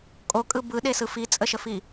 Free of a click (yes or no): yes